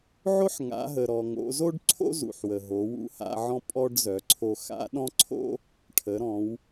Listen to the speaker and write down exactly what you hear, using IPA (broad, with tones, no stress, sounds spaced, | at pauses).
ʕ o˥ ħ ŋ a̰˩˧ ɦ ə˩ ɾ ɔ˩ ŋ o̰˩˧ z o˥ ɖ ǀʰ o̰˥ z ṵ˩ ħ w ə˩ ɦ o˩˧ w ṵ˧˥ h a̰˧ ʕ ɔ̃˧ pʼ ɔ˧ ɖ z œ˩˧ ǀʰ o˧ x a̰˧˥ ɗ ɔ̃˥ ǀʰ o̰˥ | ʈʰ ə˩˧ ɾ ɔ̃˩˧ w